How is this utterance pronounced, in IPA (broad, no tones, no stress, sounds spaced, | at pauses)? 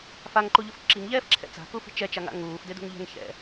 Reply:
f a ŋ ǃ u ʎ u f ǁ i ŋ ʎ ɛː f ǁʰ ɛ̰ t͡s a̤ k u f i̤ t͡ʃ ɛ t͡ʃ a ŋ a̰ ŋ uː f d ɪ d ṳ ŋ ʎ ɛ̤ ŋ ç ɛ̰